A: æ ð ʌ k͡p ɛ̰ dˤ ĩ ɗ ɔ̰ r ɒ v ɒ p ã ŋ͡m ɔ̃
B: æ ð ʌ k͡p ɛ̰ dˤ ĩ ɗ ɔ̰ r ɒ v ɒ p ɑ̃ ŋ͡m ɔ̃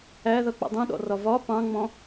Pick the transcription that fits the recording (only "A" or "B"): B